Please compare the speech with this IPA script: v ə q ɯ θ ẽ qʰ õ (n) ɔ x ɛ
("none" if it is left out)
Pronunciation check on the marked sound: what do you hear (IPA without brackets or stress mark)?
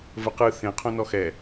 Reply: n